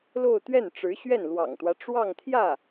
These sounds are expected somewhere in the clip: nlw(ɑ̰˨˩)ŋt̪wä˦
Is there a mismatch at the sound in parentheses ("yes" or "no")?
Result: no